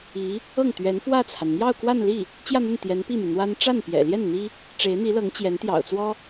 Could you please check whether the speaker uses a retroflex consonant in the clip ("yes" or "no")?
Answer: yes